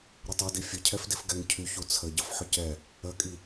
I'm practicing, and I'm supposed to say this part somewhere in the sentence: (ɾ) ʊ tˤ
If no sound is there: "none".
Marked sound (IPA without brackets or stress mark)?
ɾ